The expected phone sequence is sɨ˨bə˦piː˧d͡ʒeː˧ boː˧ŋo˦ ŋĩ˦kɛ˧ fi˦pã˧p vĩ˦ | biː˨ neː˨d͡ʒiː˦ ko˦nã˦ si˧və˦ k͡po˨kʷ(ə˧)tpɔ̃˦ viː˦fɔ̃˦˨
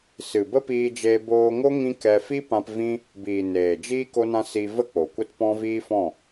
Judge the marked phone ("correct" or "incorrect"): incorrect